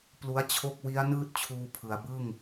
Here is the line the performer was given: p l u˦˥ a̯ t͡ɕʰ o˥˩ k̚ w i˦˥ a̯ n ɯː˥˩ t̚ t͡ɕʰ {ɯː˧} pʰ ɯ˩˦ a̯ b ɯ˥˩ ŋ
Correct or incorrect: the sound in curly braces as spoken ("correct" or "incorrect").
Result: incorrect